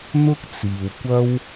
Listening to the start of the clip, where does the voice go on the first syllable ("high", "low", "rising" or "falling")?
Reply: high